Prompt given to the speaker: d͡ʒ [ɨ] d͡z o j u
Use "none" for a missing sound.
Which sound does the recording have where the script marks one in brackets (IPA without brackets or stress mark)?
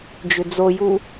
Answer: ʏ